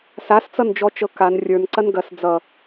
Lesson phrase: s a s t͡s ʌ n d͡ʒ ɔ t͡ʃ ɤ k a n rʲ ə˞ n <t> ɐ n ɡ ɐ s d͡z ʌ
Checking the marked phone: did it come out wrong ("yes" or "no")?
yes